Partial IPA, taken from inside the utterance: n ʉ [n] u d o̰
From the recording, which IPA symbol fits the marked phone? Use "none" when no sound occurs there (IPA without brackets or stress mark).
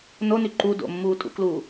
ǃ